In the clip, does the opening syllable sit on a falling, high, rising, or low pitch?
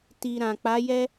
low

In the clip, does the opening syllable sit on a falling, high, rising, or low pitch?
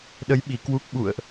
rising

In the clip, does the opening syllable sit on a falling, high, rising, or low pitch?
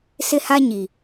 high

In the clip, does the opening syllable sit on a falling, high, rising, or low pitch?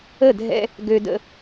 falling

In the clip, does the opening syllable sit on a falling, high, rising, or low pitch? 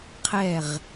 falling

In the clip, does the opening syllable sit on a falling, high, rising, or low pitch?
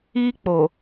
high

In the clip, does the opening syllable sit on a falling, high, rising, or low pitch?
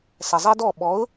low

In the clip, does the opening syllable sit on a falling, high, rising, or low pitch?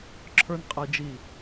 high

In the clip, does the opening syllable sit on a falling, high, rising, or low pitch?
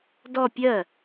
falling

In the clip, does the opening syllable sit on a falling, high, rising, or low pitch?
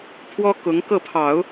high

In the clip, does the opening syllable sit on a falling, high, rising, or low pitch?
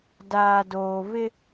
low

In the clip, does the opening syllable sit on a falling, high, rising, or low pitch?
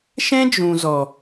high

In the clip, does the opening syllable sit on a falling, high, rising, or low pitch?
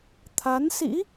rising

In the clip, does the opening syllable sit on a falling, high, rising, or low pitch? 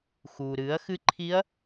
low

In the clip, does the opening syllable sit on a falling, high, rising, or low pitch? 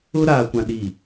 high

